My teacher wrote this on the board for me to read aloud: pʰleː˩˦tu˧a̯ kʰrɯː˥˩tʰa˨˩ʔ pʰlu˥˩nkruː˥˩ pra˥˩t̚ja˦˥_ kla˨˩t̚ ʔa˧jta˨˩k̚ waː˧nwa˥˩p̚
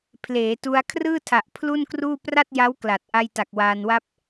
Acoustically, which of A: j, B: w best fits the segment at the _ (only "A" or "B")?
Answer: B